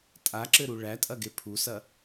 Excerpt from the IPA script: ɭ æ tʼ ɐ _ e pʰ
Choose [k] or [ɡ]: ɡ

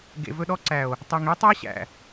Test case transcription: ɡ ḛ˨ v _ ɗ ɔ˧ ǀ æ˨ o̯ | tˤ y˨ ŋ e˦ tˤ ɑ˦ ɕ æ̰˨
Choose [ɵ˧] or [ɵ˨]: ɵ˧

